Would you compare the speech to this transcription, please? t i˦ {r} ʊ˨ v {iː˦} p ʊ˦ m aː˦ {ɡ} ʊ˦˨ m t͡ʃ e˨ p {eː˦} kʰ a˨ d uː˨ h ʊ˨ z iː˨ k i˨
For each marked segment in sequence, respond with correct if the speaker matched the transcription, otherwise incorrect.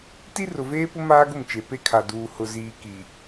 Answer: correct, incorrect: eː˦, correct, incorrect: e˦

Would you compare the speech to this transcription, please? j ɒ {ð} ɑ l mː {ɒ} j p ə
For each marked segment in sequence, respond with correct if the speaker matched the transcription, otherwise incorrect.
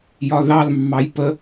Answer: correct, incorrect: ɑ

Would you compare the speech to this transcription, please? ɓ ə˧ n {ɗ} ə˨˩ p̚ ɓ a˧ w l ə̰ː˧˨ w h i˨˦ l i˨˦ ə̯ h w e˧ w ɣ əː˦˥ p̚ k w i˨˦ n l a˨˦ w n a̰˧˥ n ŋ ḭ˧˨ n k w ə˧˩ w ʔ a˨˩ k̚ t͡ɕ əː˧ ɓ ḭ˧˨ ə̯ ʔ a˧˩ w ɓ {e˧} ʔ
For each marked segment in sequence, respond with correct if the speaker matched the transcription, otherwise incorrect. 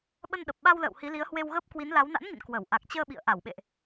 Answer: correct, incorrect: ḛ˧˨

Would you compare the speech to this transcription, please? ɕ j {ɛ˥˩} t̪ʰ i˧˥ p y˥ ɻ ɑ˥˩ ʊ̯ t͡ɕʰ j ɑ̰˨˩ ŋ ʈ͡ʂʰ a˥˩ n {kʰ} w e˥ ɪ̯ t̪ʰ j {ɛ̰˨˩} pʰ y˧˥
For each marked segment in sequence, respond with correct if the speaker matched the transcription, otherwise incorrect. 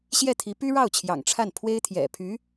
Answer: correct, incorrect: pʰ, correct

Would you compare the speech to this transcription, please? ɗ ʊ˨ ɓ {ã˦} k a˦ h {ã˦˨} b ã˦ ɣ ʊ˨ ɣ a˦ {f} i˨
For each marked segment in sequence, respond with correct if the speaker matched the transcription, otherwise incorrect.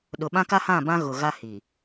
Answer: correct, correct, incorrect: h

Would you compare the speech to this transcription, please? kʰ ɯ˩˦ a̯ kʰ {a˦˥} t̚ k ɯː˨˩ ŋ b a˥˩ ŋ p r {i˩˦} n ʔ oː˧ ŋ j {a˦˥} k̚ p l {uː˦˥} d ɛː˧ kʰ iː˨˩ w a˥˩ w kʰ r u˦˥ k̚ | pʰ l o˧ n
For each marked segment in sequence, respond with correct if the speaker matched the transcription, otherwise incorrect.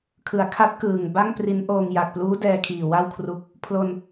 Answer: correct, incorrect: i˦˥, incorrect: a˨˩, correct

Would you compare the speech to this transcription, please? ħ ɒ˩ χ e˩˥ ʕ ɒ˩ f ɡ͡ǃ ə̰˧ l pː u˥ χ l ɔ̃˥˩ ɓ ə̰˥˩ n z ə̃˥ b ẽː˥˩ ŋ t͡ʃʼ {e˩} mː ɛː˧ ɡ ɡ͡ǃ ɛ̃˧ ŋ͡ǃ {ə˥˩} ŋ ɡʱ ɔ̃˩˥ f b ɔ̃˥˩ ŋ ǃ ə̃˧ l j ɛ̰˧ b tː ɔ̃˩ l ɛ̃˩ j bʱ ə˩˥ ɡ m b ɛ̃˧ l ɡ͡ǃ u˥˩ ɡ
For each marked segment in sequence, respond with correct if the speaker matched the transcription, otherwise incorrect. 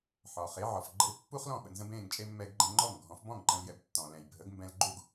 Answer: incorrect: e˥, incorrect: ɔ˥˩

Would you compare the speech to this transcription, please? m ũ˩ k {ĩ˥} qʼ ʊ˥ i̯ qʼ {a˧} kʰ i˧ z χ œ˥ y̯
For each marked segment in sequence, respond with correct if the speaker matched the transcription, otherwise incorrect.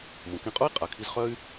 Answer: incorrect: ĩ˧, incorrect: a˩

